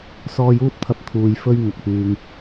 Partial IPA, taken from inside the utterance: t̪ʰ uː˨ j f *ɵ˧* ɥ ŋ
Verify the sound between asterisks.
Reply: correct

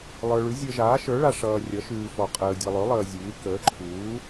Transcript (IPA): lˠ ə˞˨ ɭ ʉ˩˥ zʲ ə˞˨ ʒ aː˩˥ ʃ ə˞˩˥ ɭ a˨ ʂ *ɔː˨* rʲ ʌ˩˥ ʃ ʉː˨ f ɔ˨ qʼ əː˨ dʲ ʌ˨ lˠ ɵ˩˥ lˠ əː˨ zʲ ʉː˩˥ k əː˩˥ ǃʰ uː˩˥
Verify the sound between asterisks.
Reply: incorrect: ʌː˨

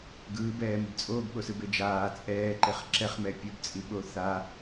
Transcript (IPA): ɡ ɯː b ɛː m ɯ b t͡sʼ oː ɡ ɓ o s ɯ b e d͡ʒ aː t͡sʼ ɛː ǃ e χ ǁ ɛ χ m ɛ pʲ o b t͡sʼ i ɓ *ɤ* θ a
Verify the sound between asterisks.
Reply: incorrect: o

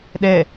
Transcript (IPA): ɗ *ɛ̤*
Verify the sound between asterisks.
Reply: incorrect: ɛ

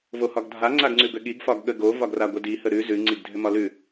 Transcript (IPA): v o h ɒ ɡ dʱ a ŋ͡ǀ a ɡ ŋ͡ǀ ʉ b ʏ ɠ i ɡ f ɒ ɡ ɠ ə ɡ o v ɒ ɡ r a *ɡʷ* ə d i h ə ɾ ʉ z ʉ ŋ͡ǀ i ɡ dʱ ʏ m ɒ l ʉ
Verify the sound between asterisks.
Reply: correct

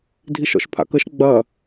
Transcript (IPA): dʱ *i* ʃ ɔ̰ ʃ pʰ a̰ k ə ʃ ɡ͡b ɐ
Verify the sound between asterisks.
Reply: correct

